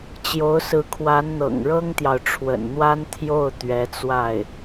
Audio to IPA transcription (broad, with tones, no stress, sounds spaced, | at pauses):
t͡ɕ j o˧˥ ʊ̯ s ɹ̩˧˥ kʰ w a˧˥ n n̪ ɤ̰˨˩ ŋ ɻ ɤ˥ ŋ t̪ j ɑ˨ ʊ̯ ʈ͡ʂʰ w ə̰˨˩ n n̪ w a˥ n t̪ʰ j o˥˩ ʊ̯ t̪ ɥ ɛ˧˥ t͡s w a˥˩ ɪ̯